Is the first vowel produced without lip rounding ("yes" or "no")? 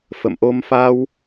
yes